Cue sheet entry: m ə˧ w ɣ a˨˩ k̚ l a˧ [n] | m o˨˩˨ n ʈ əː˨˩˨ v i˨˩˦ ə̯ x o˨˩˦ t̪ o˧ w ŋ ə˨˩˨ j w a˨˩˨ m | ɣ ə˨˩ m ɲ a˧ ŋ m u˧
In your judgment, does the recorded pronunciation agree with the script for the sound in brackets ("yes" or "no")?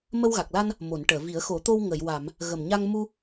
yes